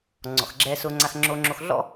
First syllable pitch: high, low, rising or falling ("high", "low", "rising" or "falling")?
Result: low